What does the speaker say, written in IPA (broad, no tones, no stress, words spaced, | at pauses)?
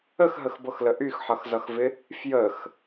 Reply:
əxɦəxbɤxlə ʔyxħʌxzʌxvɪ | fjəx